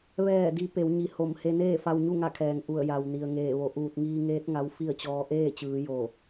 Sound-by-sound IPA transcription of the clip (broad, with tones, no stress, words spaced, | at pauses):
ʋɛː˧˩di˩˧ pe˩˧wɲi˩˧ ho˧˩m he˧neː˥˨fa˧wɲu˥˨ ŋa˥˨kʰɛː˩ŋ ʔu˧˩ə̯ja˩w ni˩ə̯ŋeː˧˩ʋo˧˩ ʔuː˧˩t̚ŋiː˧ŋeː˧˥t̚ ŋa˧˥wfi˥˨ə̯t͡ɕɔː˧ ʔeː˥˨t͡ɕɯː˩˧ jo˧˩